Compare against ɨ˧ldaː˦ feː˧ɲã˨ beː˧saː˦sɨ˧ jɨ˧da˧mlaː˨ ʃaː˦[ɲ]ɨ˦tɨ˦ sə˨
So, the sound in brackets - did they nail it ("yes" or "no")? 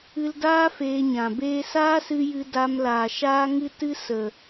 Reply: no